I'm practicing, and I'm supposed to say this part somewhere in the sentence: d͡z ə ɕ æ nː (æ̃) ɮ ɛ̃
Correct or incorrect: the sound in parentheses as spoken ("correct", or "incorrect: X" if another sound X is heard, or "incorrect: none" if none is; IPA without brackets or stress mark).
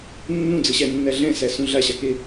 incorrect: æ